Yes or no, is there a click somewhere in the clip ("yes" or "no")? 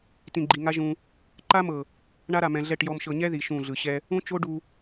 yes